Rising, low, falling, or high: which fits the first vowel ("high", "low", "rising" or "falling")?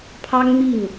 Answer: high